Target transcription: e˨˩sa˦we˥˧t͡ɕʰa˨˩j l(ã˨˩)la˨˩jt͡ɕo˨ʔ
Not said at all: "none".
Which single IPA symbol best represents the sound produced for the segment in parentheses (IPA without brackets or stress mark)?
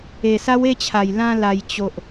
ã˧